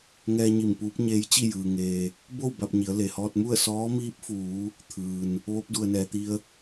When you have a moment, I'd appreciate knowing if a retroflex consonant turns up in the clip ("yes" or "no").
no